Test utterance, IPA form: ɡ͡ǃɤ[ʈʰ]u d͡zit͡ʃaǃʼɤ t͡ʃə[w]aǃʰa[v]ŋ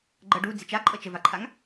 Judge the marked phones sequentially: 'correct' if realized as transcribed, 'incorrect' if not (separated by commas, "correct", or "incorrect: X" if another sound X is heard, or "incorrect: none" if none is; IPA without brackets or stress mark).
incorrect: ɖ, incorrect: v, incorrect: none